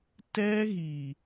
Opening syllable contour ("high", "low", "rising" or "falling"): high